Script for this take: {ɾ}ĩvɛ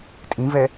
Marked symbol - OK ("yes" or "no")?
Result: no